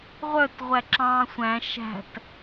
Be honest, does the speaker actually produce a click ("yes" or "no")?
yes